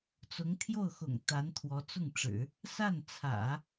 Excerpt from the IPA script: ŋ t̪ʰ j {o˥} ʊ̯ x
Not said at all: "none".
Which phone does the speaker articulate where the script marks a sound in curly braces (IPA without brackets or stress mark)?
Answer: o˥˩